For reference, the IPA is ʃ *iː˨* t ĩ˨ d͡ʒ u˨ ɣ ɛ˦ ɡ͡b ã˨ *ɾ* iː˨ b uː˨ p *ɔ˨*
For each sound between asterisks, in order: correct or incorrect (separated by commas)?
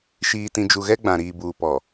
correct, correct, correct